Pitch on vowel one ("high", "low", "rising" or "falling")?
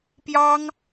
high